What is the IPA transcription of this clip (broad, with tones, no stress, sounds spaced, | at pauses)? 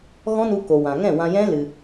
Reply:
ɣ ɔ̃˦ n u˧ k o˨ w ã˨ ŋ ɛ̃˦˨ w ã˧ j ɛ̃˦ l ɨ˧